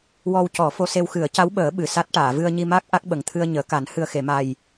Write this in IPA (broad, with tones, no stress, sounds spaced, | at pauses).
w ɔ˧ w c ɔ˨˩˦ f o˧ s e˧ w x ɨ˨˩˦ ə̯ c a˧˥ w ɓ əː˨˩˦ ɓ ɨ˨˩ s a˦˥ t̚ ʈ aː˨˩˨ v ɨ˧ ə̯ ɲ i˧ m a˦˥ k̚ ʔ a˦˥ k̚ ɓ ə˨˩ ŋ t̪ʰ ɨ˧ ə̯ ɲ əː˨˩˦ k a˨˩˦ n h ɨ˨˩ ə̯ x e˨˩˨ m a˨˩ j